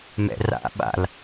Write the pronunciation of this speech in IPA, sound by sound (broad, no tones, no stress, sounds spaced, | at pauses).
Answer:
m ɛ̰ r a̰ ɓ a̰ l